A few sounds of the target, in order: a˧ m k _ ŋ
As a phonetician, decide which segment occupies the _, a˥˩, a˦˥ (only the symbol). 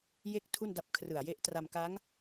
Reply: a˦˥